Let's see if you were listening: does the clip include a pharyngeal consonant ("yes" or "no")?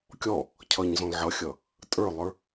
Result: yes